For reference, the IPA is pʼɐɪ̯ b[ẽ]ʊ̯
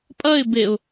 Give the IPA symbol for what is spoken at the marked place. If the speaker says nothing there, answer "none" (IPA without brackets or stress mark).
e